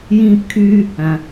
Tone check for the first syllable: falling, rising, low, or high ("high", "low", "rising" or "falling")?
high